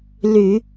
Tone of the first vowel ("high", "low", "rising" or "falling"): low